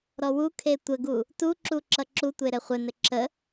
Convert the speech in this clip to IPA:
ɾ ɔ w u kʰ e tʷ ə ɡ u | t u ǁ u ǁ ʌ ǁ u tʷ e ɾ ɘ χʷ ɘ n ɘ ǁ ə

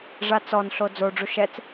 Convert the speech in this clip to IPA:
ʐ a t͡s ɔ n ɬ o d͡z o ɖ͡ʐ u ʃ ɛ t͡s

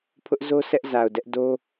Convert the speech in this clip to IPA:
pʰ ʊ˦ ʔ z o˦ s ɛ˦ ʔ z a˨ ʊ̯ d ɛ˦ ʔ d o˦

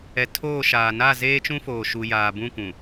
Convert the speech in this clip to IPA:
ɛ˨ tʰ oː˦˨ ʃ aː˨ n a˦˨ z eː˦ t͡ʃ ũ˦ f oː˨ ʃ u˨ j aː˨ b ũ˦˨ kʷ ũ˨

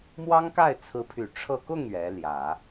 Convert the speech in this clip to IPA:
m w ɑ˥ ŋ k a˥˩ ɪ̯ t͡sʰ ɹ̩˧˥ pʰ y˨˩ ʈ͡ʂʰ ɤ˥˧ k ʊ˥˩ ŋ ɥ ɛ˧˥ l j ä˨˩˦

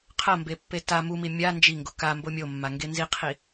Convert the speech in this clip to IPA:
qʰ ɐ m b e pː e t a m u m i mʲ a n d͡ʒ i ŋ ɡ o k a m b o mʲ o mː a ŋ ɡ e n z i qʰ i

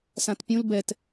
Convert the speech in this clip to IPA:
s ã t pʲ ũ l b ɛ t

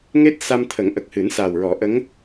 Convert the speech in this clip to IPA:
ŋ e˦˥ t̚ s a˧ m t̪ʰ ə˨˩˦ ŋ ʔ ə˨˩ k̚ h ɨ˨˩˦ n s a˨˩ w ɹ ɔ˨˩˦ ʔ ə˧˥ ŋ

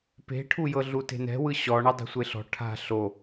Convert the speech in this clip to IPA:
p e̤ ʈʰ u j ɤ ɮ u t e̤ n ɛ̤ w ɯ ɕ ɔ ɳ a dˤ e̤ sʷ e ɬ ɔ̤ ʈʰ a̤ ɬ o

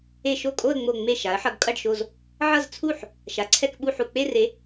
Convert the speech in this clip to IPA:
e˥˧ ʃ o˥˩ kʼ o˥˧ ə̯ ŋ͡m o˧˩ ŋ͡m e˥˩ ʃ a˩˥ ə̯ ħ ʌ˩˥ ɡ kʼ ʌ˥˩ ɖ ʃ o˧˩ z | ʕ ʌ˥˧ z t͡sʰ u˥˩ ħ | ʃ a˩˥ ǀʰ ɛ˥˧ k ɓ u˥˧ ħ u˧˩ k͡p e˥˧ r e˩˥

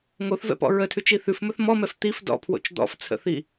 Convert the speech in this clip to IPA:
ŋ o θ v ɛ̰ p ɔ̰ ɹ ə tʰ ʉ t͡ʃ i θ ʉ f m ɵ θ m ɔ m ɛ f t̪ i f d ɔ̰ pʰ w o̰ t͡ʃ d̪ ɔ̰ f t͡sʰ ə̰ θ i

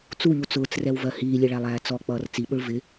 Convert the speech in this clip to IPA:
t͡s u ʎ u t͡s ʊː t͡s r ɛ w v ɜ h iː lʲ ɛ ɭ æ lˠ æː t͡s ɔ k͡p ʌː r t͡s i ɓ ʊ ɭ v ɪ

